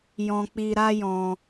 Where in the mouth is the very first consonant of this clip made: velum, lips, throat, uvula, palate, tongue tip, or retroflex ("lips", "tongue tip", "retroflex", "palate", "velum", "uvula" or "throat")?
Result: palate